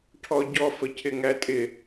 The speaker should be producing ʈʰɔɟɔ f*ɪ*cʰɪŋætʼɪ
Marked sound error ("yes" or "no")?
yes